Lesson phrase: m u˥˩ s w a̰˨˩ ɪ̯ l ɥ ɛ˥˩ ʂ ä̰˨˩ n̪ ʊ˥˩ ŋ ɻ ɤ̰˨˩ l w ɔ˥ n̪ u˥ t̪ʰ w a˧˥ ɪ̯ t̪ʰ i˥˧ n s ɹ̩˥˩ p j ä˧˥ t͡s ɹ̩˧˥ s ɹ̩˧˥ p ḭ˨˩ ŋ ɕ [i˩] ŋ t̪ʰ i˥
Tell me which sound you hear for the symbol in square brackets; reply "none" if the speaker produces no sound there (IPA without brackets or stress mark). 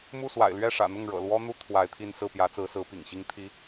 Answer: i˥